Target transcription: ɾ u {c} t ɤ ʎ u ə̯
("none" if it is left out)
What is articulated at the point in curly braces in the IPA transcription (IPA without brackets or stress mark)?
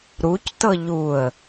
c